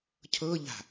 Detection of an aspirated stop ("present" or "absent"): present